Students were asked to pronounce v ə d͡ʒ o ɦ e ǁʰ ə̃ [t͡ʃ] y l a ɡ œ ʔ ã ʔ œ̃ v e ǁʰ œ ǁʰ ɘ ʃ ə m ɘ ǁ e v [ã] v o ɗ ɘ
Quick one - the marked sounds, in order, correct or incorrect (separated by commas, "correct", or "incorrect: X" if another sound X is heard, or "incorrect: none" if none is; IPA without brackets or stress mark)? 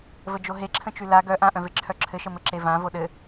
correct, correct